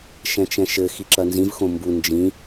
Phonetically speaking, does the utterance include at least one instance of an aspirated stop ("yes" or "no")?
no